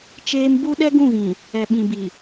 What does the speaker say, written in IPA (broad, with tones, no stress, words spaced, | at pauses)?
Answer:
t͡ʃeː˦m bu˦ɗɛ˦ɡũ˦˨ɣĩ˨ | ɛ˨ɓĩ˨ bi˨